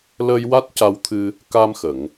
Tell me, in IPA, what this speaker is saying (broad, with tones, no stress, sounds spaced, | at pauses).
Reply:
l ə˧ j w a˦˥ t̚ c a˧ w t̪ʰ ɨ˧ | k a˧ m x ə˨˩˨ ŋ